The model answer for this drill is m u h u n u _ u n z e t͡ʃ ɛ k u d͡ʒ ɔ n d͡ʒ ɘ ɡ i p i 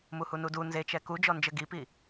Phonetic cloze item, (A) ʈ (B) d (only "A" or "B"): B